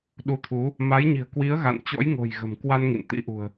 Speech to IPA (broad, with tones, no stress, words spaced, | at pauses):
ɗu˨˦t̪ʰu˨˦ | ma˨˦jɲi̤˨˩ə̯kwi˨˦ə̯ ɣa̰˧˨nt͡ɕɔ̰˧˥jŋo̤˨˩j ɣə̤˨˩mkwa˧n ŋḭ˧˨nt̪ḭ˧˥ʔṳ˨˩ə̯